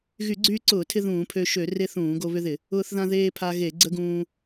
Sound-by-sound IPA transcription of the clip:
ɣ y˧˩˧ ɡ͡ǀ yː˧ ǀ ʊː˧˩˧ tʰ ɪ˧ ð ũː˧˩˧ pʰ ø˧ ʃ ø˧˩˧ r e˧ θ ũː˧˩˧ ɡ o˧ β ʏ˧ ð ɪ˧˩˧ | ʊː˧ θ ð ã˧ ð eː˧ pʰ a˧ ɣ e˧˩˧ ɡ͡ǀ ə˧ ɡ ũː˧

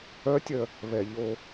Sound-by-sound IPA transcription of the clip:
œ tʲ œ | β ɛ ʎ o

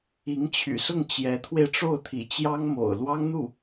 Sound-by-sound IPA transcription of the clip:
i˧˥ ŋ t͡ɕʰ y̰˨˩ s ʊ˥˩ ŋ t͡ɕ j ɛ˧˥ t̪ʰ w e˧ ɪ̯ ʈ͡ʂ o˥˩ ʊ̯ t̪ʰ ḭ˨˩ t͡ɕ j ɑ˥ ŋ m o̰˨˩ ʊ̯ l w ɑ˥ ŋ n̪ u˥˩

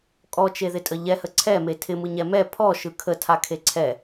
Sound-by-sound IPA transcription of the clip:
kʼ ɔ t͡ʃ e ð ɪ tʼ ə ʎ ɛ h ə ǀʰ ɛ m e tʰ ɪ m ɯ ɲ ɛ m ɛ pʰ ɔ ʃ ɯ kʰ ə tʰ a kʰ e ǀʰ ɛ

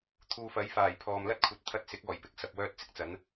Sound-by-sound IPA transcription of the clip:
t̪ʰ uː˨ f ɐ˨˥ j f aː˨˩ j pʰ ɔː˨ m l ɐ˥ t̚ kʷʰ ɐ˨ t̚ t̪ʰ ɐ˧ t̚ s ɪ˨˥ k̚ ɔː˨˩ j p ɪ˨˥ k̚ s ɐ˨ p̚ w œː˥ t̚ t͡s ɪ˥ k̚ t͡s ɐ˨˥ n

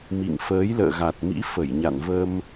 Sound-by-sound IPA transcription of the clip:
m ḭ˧˨ ŋ f əː˨˦ j l ə̰ː˧˨ ɣ a˨˩ t̚ m ḭ˧˥ f ə˧˩ j ɲ a̰˧˨ n v ə˧ m

